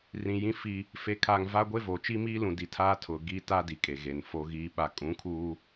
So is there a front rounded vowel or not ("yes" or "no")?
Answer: no